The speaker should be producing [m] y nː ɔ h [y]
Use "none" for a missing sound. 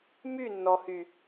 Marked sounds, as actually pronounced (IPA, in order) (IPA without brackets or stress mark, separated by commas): m, y